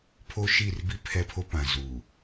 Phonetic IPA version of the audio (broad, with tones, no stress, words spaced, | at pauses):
pʰo˦ ʃi˦˨rbi˦ pʰɛ˦pʰo˦ pã˨zu˨